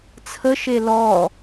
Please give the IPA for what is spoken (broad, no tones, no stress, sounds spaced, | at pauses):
t͡sʰ ə ʃ e l ɔ